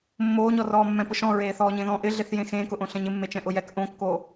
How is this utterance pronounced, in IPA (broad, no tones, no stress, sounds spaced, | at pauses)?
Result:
mː oː ɲ ɔ r ɔː mː ɛ̃ p ʊ ʃ ɔ̃ ɹ eː θ ɔː ɲ ẽ ð ɔ̃ ʔ ɪ ɮ e θ j ẽ x ẽː k ʊ ʔ õ ɬ ɛ̃ ɲ ɪ mː e t͡ʃ ɛ̃ ʔ ʊ j ɛ k ʔ õ kː oː